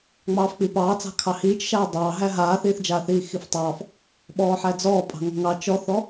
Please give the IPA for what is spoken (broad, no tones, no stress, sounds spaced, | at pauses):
ŋ͡m ɑː f k͡p i p ɑː t͡s ɑ̤ kʰ ɑ h iː t͡ʃ ʃ aː dˤ ɑː ɦ æ ɦ aː θ iː θ d͡ʒ aː θ iː x i f tˤ ɑː f | ɓ ɔː ħ æ d͡z ɔː pʼ ɑ̤ ŋ ɔ̤ ŋ ɑ t͡ʃ ɔ θ ɔ